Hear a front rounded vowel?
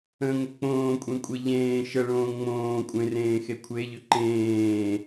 yes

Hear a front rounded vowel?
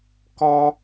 no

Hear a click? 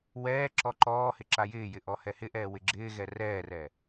yes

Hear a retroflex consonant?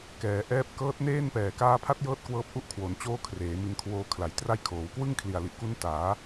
no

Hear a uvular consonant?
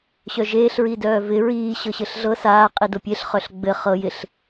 yes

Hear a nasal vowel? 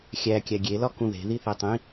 yes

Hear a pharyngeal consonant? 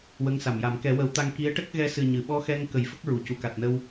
no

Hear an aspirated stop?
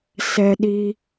no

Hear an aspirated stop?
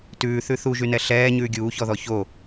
no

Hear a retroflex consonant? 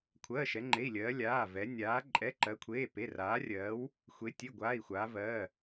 no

